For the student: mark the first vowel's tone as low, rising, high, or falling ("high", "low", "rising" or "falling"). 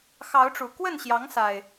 rising